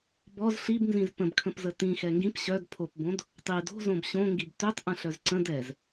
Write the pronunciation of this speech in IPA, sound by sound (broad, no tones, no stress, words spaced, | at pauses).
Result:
bɔz ɬibnzĩz pə̃bkʰə̃pzə tĩxɛ ŋɡĩp ɕœd pʰopbõd | tˤi do̤zõb ɕõŋɡib tøtˤʔə̃ɬœz ǀə̃d ɛz